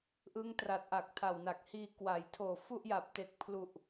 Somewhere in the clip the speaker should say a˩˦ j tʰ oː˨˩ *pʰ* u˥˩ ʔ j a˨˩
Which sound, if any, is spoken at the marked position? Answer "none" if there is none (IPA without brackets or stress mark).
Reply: f